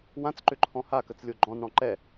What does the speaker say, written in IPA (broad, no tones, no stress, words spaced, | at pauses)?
wãt͡sǃʏǃʰɔ̃ hakət͡slʲo ɡ͡ǃɔ̃nɽɔ̃ ǃɛ